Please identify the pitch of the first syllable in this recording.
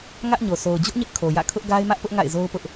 high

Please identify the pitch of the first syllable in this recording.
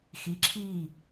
rising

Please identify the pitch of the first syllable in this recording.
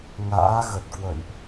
rising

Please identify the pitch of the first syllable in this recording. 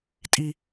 high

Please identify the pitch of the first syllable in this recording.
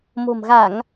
low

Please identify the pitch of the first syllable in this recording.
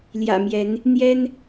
low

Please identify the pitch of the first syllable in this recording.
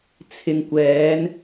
low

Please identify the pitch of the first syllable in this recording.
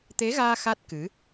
rising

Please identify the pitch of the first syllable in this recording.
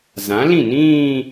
rising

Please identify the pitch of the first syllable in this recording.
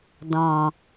low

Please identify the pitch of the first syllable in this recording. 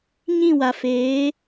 falling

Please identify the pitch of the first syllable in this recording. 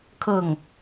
falling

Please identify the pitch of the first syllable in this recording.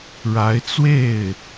rising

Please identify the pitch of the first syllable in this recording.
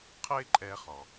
high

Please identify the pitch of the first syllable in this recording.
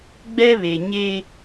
high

